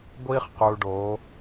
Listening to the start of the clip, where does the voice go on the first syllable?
high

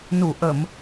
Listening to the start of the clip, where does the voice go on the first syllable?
low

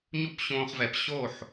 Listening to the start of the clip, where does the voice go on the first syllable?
falling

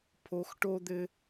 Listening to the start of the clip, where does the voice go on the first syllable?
low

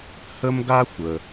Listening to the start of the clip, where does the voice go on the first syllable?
high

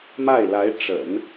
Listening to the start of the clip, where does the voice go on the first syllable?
falling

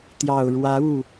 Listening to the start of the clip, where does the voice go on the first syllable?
low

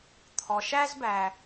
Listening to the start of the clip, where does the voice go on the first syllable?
low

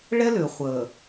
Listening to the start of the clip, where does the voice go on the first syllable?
high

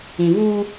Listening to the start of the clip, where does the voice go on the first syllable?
low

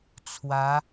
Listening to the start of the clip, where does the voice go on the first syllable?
rising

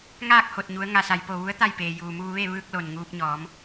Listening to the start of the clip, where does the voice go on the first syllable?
falling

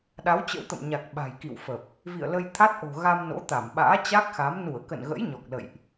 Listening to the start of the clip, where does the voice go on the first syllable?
rising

